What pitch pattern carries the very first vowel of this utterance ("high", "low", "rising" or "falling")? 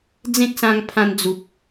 high